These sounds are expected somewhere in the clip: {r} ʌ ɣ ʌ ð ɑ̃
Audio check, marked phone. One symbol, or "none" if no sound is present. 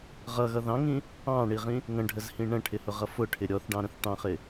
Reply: ʁ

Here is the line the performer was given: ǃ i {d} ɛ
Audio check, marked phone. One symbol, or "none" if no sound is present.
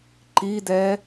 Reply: d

